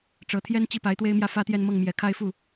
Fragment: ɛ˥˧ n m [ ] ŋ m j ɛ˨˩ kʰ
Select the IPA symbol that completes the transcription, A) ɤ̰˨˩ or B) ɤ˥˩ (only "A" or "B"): B